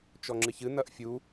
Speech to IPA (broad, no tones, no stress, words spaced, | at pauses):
t͡ʃɔŋ͡ǁɨçɨ nɐʔfʲu